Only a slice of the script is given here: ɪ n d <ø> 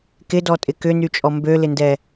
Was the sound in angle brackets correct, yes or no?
no